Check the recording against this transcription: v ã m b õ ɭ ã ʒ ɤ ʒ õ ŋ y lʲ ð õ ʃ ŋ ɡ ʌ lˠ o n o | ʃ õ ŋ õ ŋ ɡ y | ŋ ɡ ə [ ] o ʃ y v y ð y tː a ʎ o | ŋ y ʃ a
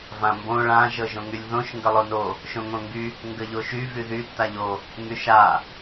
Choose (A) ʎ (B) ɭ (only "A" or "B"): A